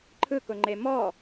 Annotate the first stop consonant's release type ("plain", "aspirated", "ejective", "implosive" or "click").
click